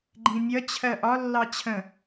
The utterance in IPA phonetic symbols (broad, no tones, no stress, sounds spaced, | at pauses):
ɡ͡ǃ ĩ mʲ ʌ t͡ɕʰ ɜ ʔ ɒ lː ɑ t͡ɕʰ ə̃